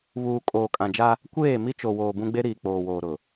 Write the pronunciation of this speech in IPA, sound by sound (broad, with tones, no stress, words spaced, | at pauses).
βuː˨ kʼoː˨kʼã˨d͡ʒa˦ | kʷeː˦˨ mi˦t͡ʃo˨woː˨ bũ˦ɡ͡be˦ɾiː˨ k͡poː˨woː˨ɾʊ˨